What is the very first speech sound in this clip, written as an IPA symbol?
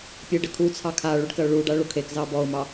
pʲ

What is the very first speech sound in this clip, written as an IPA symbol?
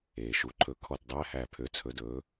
eː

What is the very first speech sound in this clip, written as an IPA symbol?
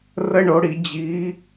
r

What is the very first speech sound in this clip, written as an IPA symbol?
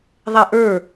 ðˤ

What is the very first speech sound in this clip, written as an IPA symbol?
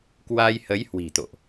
k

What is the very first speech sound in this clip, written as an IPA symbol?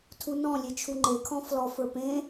tʰ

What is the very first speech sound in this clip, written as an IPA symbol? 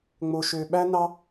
ŋ͡m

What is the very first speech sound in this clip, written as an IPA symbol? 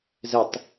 z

